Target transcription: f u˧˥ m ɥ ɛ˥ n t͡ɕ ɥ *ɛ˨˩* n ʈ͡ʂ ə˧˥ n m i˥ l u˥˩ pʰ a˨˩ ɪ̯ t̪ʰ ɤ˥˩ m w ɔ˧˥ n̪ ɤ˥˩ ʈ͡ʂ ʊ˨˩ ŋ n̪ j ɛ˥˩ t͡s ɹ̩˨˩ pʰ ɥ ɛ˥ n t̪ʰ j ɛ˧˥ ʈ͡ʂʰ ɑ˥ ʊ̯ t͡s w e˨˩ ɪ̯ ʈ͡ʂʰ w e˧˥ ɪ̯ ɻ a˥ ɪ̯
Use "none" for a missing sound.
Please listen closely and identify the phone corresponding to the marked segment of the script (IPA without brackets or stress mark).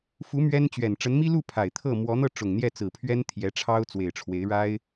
ɛ˨˩